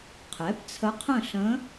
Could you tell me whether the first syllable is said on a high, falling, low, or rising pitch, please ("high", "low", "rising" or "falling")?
rising